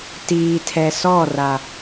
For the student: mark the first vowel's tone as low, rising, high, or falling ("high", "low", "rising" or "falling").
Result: low